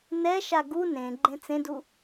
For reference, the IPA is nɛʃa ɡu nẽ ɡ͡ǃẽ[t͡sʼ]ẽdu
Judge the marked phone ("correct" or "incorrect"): incorrect